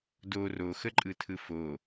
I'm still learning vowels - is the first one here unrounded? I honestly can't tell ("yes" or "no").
no